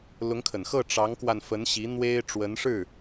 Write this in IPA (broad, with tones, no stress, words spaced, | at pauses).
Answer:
lʊ˧˥ŋkʰə˨˩nxɤ˥˩ ʈ͡ʂɑ˧˥ŋkwa˧n fə˧˥nɕi˧˥ n̪we˥ɪ̯ʈ͡ʂwə˧˥nʂɻ̩˥˩